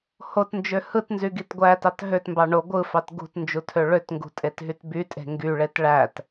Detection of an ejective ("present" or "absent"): present